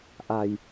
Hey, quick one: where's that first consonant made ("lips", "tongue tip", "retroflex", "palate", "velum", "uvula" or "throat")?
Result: throat